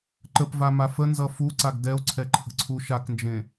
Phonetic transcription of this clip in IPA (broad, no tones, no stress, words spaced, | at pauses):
ǃəpvama fənzʌ fuǀaɡ dɛo̯ǀʰɛǃʰə̤ǀʰu ʃaknd͡ʒẽ